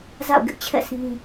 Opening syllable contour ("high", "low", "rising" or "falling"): falling